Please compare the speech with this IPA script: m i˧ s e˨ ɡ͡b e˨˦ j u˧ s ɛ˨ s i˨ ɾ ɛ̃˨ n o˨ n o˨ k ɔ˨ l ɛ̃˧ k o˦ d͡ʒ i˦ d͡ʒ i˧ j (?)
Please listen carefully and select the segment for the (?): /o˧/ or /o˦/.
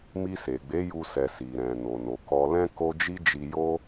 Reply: o˦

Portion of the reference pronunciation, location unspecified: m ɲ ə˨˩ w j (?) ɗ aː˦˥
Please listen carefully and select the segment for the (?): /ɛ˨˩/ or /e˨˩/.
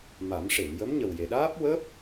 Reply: e˨˩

